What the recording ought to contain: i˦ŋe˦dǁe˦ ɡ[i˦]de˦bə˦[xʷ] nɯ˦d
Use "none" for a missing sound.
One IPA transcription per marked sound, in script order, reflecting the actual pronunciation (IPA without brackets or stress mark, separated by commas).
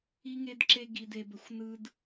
i˦, xʷ